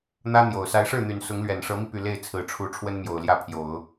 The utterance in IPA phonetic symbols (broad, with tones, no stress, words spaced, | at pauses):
n̪ä˥ n̪jo˨˩ʊ̯ sa˧˥ɪ̯ʂɻ̩˥˩n̪y˨˩n sʊ˧˥ŋlɥɛ˨˩nʂɤ˧˥mi˧ py˥˧ le˥˩ɪ̯t͡sʰɹ̩˨˩ʈ͡ʂʰu˧˥ ʈ͡ʂʰwə˥nmjo˨˩ʊ̯ ljä˥˩pʰjo˨˩˦ʊ̯